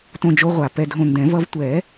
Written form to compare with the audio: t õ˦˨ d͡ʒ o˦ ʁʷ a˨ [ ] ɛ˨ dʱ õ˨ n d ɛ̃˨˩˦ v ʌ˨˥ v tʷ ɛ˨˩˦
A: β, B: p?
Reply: B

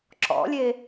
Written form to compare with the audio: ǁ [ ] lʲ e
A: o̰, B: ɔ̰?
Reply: B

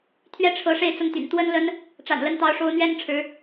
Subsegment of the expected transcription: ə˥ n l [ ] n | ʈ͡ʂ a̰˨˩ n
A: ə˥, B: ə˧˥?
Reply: A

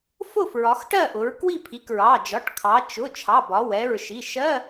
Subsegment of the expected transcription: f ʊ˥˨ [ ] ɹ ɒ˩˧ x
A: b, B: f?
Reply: B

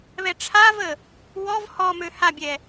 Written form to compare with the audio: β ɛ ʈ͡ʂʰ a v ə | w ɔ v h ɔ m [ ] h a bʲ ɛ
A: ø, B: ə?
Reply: A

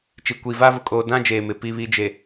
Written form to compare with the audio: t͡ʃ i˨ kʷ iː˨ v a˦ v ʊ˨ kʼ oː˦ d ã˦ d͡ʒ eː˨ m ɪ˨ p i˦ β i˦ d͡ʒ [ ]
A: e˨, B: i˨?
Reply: A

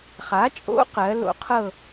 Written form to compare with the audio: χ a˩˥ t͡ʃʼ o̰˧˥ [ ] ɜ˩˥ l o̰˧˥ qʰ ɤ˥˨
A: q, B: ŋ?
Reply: A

